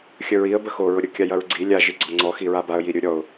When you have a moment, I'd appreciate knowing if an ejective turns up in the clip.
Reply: no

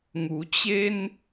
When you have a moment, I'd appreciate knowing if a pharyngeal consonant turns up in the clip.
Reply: no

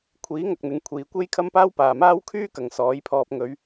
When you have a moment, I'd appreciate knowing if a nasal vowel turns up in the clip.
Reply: no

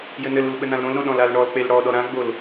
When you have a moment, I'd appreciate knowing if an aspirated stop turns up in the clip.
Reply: no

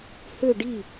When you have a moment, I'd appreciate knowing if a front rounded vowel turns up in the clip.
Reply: yes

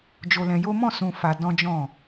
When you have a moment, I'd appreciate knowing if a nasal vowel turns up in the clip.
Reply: yes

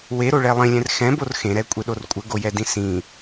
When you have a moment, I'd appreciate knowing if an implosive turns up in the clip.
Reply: yes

